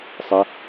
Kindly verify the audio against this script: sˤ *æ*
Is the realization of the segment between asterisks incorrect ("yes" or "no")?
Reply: no